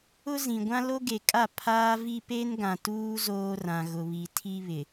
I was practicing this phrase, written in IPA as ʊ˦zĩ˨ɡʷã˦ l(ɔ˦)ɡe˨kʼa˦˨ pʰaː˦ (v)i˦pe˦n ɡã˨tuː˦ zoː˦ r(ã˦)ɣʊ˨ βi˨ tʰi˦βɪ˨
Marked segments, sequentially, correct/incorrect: incorrect, correct, incorrect

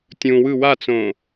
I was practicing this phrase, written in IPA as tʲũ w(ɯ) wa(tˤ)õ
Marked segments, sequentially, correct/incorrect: correct, incorrect

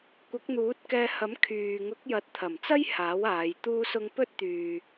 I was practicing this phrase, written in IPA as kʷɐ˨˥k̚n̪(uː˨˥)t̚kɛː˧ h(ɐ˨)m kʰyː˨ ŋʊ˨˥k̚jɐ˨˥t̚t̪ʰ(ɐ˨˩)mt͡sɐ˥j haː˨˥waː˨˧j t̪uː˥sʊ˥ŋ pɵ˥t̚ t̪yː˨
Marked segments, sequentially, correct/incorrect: correct, incorrect, correct

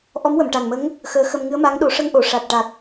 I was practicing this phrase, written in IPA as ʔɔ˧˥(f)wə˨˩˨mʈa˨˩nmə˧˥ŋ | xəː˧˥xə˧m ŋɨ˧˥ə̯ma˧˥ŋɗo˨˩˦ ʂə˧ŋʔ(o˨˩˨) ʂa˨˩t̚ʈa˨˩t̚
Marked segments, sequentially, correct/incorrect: incorrect, correct

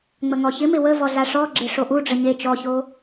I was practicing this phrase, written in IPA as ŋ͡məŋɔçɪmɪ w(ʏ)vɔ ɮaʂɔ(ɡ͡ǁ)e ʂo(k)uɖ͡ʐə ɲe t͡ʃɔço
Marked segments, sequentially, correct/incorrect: incorrect, correct, incorrect

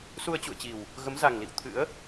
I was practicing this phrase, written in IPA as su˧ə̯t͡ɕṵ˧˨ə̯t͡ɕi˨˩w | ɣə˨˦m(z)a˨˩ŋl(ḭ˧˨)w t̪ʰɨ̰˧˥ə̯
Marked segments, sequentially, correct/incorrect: correct, correct

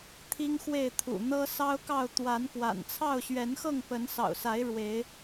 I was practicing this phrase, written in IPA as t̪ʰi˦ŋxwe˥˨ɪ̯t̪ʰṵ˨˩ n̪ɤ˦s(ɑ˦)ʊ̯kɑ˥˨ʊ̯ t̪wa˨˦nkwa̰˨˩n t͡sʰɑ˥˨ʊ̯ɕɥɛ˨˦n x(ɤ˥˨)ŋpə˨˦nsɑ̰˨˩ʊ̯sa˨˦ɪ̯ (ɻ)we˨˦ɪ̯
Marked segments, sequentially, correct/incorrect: correct, correct, correct

